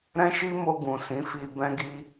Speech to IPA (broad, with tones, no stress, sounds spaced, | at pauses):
ɾ ɛ̃˦ ʃ i˦ m o˧ ɡ ũ˨ s ĩ˨˦ f i˧ b ɛ̃˦ ɡ i˦